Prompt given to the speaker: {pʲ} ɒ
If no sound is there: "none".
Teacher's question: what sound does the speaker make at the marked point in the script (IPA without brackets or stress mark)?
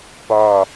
p